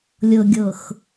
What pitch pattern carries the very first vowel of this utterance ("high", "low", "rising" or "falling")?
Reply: low